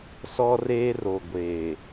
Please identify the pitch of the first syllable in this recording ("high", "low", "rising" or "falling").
high